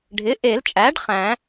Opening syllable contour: rising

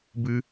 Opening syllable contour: high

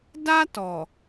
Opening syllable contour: high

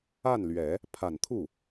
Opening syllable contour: falling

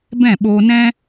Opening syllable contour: falling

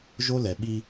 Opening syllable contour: high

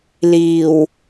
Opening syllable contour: low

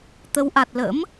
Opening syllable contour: rising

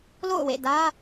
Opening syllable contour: falling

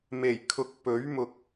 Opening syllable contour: low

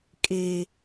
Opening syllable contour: low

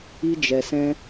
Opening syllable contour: high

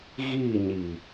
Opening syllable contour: falling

